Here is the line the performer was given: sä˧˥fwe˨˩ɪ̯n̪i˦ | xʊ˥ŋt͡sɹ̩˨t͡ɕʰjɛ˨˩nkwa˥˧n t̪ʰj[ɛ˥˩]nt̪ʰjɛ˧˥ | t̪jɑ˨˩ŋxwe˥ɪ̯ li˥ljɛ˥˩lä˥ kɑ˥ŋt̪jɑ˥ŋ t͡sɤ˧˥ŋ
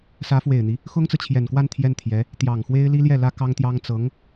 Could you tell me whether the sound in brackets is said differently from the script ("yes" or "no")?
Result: no